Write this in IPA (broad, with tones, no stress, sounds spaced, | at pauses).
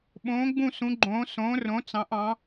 ɓ õː˨˥ ɡ͡b ũ˦˨ s ũ˨˥ ɡ͡ǃ õː˨˥ s õː˨˥ r õ˨˥ t͡s ɑ̃˨˥ ʔ ɑ̃˨˥